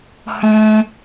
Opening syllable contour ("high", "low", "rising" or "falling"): high